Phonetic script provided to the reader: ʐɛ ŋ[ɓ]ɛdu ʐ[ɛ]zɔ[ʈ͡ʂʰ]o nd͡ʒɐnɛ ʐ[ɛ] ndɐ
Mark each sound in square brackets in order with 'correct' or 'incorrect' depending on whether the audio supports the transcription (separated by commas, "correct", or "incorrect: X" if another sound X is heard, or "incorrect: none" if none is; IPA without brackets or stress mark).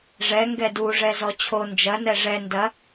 incorrect: ɡ, correct, incorrect: t͡ɕʰ, correct